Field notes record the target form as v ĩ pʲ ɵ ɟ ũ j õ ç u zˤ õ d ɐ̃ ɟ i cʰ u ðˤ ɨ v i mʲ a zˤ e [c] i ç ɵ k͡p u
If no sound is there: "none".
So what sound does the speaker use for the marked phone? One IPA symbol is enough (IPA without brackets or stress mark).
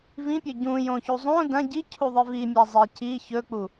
c